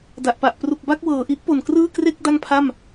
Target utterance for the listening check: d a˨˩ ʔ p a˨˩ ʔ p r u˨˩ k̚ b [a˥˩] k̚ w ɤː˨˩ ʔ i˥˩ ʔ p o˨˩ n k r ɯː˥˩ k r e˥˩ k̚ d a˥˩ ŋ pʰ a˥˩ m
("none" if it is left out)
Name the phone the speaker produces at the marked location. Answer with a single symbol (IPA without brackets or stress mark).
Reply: a˥˩